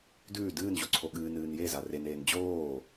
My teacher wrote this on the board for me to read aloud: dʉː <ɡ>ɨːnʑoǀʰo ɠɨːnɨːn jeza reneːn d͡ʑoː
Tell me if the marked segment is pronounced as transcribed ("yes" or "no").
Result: no